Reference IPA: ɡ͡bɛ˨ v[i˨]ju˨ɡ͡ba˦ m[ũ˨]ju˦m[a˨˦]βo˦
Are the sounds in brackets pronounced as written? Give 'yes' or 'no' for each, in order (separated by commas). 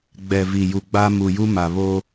yes, no, no